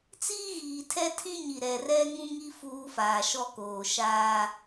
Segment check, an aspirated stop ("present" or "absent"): present